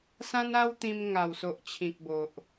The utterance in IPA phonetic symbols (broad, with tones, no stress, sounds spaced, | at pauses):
s ã˦ n a˦ w t̪ ĩ˧ m ŋ a˨˩ w s o˨ ʔ t͡ɕʰ ĩ˨ k̚ b o˨ ʔ